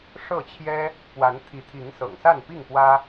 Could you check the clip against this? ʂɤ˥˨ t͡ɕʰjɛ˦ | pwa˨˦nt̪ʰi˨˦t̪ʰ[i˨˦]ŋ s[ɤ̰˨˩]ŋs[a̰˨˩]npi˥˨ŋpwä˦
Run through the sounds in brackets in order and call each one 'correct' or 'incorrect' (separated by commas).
correct, correct, incorrect